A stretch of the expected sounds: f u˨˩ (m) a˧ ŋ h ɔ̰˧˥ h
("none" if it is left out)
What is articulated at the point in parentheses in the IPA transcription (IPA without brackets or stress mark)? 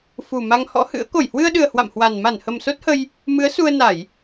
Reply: m